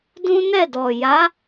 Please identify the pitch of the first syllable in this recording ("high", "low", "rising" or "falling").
high